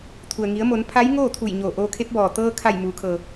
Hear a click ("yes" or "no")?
no